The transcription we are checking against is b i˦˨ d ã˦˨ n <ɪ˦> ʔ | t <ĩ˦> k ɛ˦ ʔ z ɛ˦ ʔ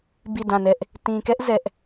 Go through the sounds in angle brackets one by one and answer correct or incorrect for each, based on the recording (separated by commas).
incorrect, incorrect